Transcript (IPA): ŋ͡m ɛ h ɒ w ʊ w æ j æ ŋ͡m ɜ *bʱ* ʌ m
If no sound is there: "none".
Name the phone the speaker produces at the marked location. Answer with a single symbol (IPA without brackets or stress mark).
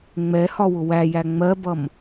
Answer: b